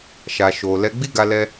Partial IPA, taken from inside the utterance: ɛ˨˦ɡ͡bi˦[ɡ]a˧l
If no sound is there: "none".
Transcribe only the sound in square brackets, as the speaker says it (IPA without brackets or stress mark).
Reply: ɡ